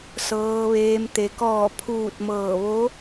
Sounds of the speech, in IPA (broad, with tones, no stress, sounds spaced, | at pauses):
s ɤː˩ ʋ eː˩ m t̪ e˩ k ɔː˧˩ pʰ uː˧˩ t̚ m ɤː˧˩ ʋ o˧˥